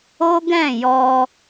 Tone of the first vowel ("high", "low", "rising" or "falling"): high